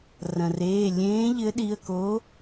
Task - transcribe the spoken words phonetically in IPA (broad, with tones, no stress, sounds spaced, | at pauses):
r ɐ̃˩ r eː˩˧˩ lʲ ẽː˨˥ ʎ ɘ˨˥ ɗ i˩˧˩ ə̯ k o˨˥